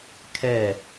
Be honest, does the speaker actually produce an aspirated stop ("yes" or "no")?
yes